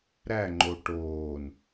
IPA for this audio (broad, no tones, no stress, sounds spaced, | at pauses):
ɾ æ ŋ͡ǃ o ʈ oː n